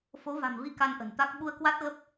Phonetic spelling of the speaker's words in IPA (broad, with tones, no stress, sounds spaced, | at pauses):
f o˨˦ v a̤˨˩ m v i˧ k a˧ n ʔ ə̤˨˩ n t̪ a˦˥ k̚ ɓ u˧ ə̯ k w a˦˥ t̚ ɣ ə˦˥ p̚